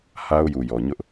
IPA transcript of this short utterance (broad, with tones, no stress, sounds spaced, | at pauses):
h a˦ ʊ̯ j u˨ j ɔ˨ ɲ ʊ˦ ʔ